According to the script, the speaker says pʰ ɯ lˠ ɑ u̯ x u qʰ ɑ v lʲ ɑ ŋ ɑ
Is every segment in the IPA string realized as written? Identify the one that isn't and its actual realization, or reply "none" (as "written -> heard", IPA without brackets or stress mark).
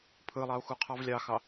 ŋ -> x